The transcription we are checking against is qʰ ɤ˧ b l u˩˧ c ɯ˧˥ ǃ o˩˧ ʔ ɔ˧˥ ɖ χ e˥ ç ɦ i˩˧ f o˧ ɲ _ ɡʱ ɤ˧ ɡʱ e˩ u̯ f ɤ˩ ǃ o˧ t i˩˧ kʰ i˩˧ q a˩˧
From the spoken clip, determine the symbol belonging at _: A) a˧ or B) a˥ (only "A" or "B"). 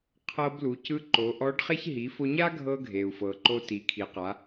B